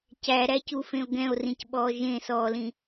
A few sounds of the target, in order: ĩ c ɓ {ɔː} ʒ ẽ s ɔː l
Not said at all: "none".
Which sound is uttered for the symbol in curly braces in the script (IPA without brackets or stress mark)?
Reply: ɔː